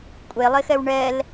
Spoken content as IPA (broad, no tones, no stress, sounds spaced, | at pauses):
kʷʼ e lˠ e x ɛ w ɳ ɛ l